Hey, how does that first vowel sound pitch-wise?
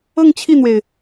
falling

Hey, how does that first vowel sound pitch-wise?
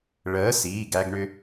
rising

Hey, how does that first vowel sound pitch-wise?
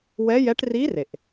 rising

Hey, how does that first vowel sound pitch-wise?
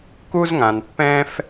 high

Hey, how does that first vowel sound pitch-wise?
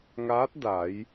rising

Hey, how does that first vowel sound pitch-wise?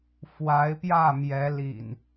rising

